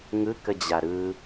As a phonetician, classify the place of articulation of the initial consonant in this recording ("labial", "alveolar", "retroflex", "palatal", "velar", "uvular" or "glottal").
velar